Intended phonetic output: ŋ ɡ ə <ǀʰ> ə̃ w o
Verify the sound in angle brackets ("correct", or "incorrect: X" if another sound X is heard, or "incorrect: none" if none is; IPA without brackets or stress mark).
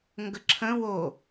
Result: incorrect: ǁʰ